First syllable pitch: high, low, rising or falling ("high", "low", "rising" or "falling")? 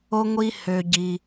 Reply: high